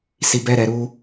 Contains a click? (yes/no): no